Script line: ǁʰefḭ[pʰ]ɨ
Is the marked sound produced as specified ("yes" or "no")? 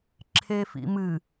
no